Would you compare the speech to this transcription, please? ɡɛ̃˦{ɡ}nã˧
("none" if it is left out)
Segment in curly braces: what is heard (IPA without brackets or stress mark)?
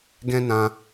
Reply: none